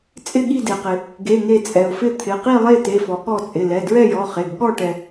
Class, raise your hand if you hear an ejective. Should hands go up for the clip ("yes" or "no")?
yes